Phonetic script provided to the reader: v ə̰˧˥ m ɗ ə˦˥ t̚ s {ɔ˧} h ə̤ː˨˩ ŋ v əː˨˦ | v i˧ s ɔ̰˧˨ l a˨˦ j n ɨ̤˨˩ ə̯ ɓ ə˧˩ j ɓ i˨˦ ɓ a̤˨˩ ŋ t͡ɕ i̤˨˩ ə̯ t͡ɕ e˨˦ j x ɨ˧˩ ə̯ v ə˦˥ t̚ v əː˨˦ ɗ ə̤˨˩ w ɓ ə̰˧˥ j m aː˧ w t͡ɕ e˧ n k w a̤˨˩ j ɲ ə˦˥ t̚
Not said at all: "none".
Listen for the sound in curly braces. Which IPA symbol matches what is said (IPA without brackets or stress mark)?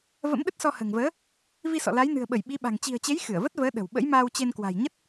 ɔ˧